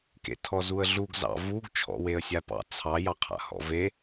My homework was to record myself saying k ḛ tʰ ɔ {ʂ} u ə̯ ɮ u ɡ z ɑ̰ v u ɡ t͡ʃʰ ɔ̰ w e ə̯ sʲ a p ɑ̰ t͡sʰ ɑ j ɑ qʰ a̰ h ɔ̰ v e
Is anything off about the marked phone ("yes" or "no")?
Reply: yes